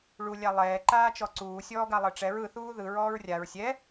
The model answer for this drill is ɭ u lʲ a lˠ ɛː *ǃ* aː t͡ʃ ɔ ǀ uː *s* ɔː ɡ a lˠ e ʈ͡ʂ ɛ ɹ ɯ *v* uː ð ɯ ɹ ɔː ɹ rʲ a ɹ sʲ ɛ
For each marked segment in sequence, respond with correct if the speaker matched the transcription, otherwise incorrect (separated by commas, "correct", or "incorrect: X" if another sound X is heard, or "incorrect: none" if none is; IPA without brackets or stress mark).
correct, incorrect: sʲ, incorrect: θ